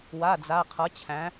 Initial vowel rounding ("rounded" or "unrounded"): unrounded